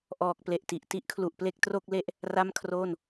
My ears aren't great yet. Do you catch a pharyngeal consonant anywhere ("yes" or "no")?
no